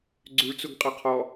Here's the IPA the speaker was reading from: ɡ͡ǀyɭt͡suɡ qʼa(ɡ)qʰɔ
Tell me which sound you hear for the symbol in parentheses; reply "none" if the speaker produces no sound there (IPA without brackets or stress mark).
none